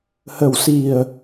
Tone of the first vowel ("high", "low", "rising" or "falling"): low